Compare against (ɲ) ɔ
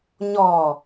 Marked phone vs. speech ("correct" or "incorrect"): correct